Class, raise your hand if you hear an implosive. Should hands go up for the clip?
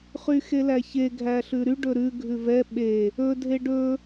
yes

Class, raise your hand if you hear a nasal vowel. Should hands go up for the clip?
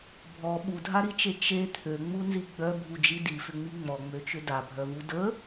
no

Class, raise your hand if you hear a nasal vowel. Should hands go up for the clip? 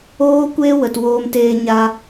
no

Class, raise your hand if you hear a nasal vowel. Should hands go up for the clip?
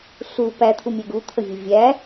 no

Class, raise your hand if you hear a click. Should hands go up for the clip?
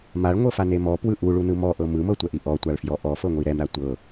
no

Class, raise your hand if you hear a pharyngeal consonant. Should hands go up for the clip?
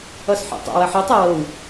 yes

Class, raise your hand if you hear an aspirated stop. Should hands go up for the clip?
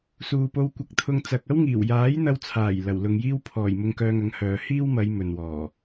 yes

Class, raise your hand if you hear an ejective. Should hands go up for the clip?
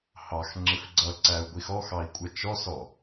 yes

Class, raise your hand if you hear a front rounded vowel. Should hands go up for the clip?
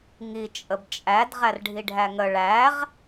no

